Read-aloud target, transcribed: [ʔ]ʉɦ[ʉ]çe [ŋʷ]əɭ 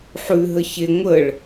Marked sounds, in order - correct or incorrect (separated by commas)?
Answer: incorrect, incorrect, correct